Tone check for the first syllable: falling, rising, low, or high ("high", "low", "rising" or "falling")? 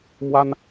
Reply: high